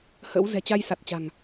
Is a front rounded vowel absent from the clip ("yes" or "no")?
yes